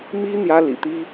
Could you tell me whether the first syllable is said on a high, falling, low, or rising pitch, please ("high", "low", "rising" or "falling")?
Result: high